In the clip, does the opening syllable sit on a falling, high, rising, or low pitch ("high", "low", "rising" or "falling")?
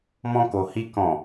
high